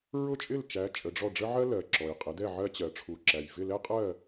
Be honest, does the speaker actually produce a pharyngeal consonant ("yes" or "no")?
yes